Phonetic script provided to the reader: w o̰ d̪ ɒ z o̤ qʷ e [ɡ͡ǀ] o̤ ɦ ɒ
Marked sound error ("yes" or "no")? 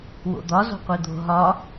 yes